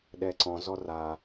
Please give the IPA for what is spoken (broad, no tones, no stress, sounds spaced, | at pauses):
ɗ ɛ ǀ ɔ̃ z ɔ r a